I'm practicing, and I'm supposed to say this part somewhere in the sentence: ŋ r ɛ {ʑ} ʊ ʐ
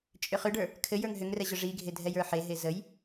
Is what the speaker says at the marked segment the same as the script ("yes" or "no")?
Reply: yes